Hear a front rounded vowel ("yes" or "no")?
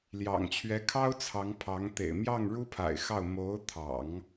no